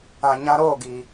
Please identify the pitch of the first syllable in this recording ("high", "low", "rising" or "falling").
low